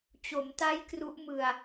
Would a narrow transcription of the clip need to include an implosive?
no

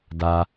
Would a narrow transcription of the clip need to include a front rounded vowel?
no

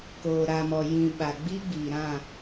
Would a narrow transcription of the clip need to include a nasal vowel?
yes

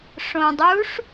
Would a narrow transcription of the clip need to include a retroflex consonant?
yes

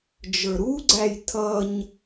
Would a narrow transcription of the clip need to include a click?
yes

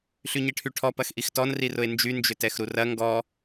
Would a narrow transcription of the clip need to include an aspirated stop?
yes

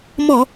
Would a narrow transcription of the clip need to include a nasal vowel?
no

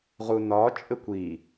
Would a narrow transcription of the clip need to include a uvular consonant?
yes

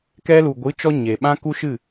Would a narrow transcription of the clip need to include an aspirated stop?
no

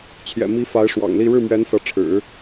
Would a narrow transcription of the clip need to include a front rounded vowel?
no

